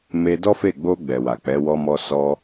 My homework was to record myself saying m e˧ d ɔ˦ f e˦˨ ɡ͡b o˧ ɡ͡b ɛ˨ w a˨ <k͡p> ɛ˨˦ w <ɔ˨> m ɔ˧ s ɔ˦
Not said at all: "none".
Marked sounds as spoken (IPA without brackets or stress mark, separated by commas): k͡p, ɔ˧